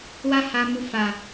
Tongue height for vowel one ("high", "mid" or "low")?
low